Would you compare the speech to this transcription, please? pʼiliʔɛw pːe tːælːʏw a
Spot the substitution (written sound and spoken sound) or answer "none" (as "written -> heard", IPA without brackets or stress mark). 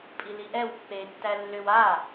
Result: none